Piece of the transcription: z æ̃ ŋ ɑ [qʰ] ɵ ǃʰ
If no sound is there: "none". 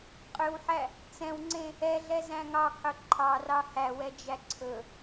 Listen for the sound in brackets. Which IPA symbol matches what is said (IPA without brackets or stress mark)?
qʰ